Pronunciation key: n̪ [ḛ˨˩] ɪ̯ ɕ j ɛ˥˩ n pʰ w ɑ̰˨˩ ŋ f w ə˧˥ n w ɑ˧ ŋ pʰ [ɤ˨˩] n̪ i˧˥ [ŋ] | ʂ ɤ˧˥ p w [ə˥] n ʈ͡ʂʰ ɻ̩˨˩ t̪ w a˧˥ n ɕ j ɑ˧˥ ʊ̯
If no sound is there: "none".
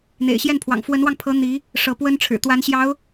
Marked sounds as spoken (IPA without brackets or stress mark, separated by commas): ḛ˨˩, ɤ˧˥, none, ə˥